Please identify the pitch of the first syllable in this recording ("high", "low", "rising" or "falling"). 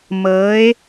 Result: rising